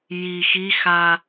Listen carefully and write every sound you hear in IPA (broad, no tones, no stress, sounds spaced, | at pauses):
j i x i x a